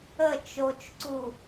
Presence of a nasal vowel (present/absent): absent